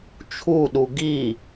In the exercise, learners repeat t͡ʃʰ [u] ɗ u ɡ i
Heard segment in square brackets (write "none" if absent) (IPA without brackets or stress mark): u